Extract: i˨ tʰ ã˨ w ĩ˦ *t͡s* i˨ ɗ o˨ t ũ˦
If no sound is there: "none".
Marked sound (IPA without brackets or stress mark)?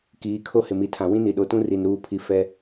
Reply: n